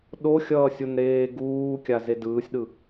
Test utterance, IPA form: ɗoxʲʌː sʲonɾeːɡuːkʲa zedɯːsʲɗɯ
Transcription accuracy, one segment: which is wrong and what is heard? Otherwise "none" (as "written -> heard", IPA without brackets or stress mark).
none